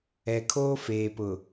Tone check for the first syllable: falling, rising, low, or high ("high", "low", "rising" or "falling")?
low